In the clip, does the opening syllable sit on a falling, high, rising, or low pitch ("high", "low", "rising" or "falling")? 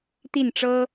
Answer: falling